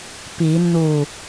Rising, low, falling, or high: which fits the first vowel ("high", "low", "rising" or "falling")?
rising